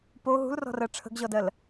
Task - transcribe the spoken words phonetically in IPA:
p o ɦ ṳ l r ɔ̤ r ɜ ʈ͡ʂʰ ə̤ ɡ ʑ ɔ d ɜ l

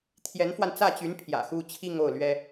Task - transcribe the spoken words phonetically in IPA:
t̪ʰ j ɛ˧˥ n f w a˧ n t͡s ä˥˩ t͡ɕ y˧˥ n pʰ j ä̰˨˩ x u˥ t͡ɕʰ i˥˧ ŋ o˥˩ ʊ̯ l ɥ ɛ˥

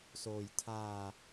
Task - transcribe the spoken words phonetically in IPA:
s oː˧ j tʰ aː˧

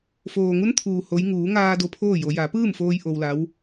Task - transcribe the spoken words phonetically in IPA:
f oː˩ ŋ u˧˥ n t̪ʰ uː˩ h o˧˥ j ŋ uː˩˧ ŋ aː˧ d o˧ pʰ oː˥˨ j o˩˧ j a˩˧ p ɯː˥˨ m f oː˧ j ʔ o˧ w l a˧˥ w

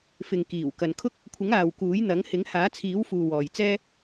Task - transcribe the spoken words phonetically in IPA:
f ɪ˨ ŋ k iː˨˩ w k ɐ˨ n kʰ ʊ˥ k̚ | kʷʰ ɪ˨˥ ŋ aː˨ w k uː˨˥ j n̪ ɐ˨˥ ŋ h ɪ˨˥ ŋ h aː˨˥ t͡sʰ iː˨˥ w f uː˨ w ɔː˨ j t͡s ɛː˥

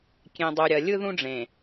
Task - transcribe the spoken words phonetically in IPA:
kʲ ẽ˨ dˤ u˨ ɾʲ ɐ˨ lʲ ɯ˦ ð ũ˦ ɖ͡ʐ ẽ˨

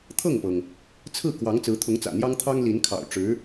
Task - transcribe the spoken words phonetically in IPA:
t̪ʰ ɤ˥˩ ŋ p ɤ˩ ŋ | t͡sʰ ɹ̩˥˩ k w ɑ˧˥ ŋ t͡s ɹ̩˧˥ t̪ʰ ʊ˧˥ ŋ t͡s ä̰˨˩ n̪ j ɑ˥ ŋ t̪ʰ ɑ˥ ŋ l i˧˥ n kʰ ɑ̰˨˩ ʊ̯ ʈ͡ʂ ɻ̩˧˥

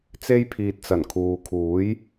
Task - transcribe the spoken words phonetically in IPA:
t͡s e˧ j pʰ iː˨ t̚ t͡s ɐ˨˩ n kʰ uː˨ kʰ uː˨˥ j

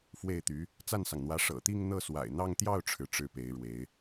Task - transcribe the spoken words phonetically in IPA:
f w e˥˩ ɪ̯ t̪ y˧˥ | t͡s a˥˩ n s ɑ˩ ŋ n̪ w ä˧˥ ʂ ɤ̰˨˩ t̪ i˥˧ ŋ n̪ ɤ˥˩ s w a̰˨˩ ɪ̯ n̪ ɑ˥˧ ŋ t̪ j ɑ˥˩ ʊ̯ ʈ͡ʂʰ ɻ̩˩ ʈ͡ʂ ɻ̩˥˩ p e˧˥ ɪ̯ ɻ w e˧˥ ɪ̯

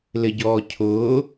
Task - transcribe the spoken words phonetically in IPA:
l ɪ ɟ ɔː cʰ ʊː

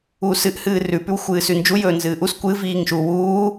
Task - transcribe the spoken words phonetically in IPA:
uː s ɨ ʔ h ɨː r ʉ p ʉ w xʷ ɨː s ʉ n d͡ʒ u j ɵː n z ɨː ʔ u s kʷ ɨ v iː ŋ ʃ u w uː

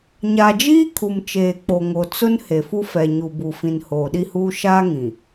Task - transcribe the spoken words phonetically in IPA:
ɲ a˨ d͡ʒ iː˦ kʰ u˨ m t͡ʃ eː˨ k͡p o˨ ŋ o˨ t͡s ʊ˦ n h e˨ f u˦ f ɛ˨ ɲ u˨ b u˨ f ĩ˨ n h oː˨ ɗ i˦ h uː˦ ʃ aː˦ ŋ ĩ˨

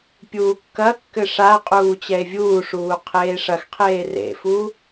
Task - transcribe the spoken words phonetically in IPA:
pʲ uː kː ɐ kː ɘ ʂ a qʼ uː t͡ɕ ɛ e̯ vʲ uː ʂ uː qʰ eː ʂ ɐ x qʰ eː r ḛ f u

